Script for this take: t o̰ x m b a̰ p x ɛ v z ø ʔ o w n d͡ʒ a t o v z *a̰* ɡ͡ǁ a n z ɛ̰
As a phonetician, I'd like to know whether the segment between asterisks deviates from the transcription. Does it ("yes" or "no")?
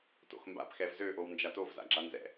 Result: no